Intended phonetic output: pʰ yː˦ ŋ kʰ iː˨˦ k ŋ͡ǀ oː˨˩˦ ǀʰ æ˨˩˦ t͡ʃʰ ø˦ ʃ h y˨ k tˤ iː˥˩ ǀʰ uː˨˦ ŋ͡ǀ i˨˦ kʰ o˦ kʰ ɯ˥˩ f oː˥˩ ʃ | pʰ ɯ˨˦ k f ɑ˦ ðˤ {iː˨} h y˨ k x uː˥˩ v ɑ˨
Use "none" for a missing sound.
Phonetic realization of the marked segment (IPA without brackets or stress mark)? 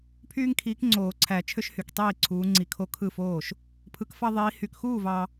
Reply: iː˨˦